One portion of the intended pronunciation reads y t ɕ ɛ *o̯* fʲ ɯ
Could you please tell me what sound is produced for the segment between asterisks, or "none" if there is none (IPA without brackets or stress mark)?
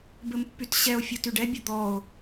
o̯